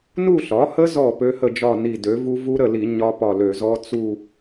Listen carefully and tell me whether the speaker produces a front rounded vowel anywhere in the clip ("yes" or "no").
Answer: yes